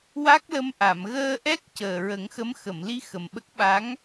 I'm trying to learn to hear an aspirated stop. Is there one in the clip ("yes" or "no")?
no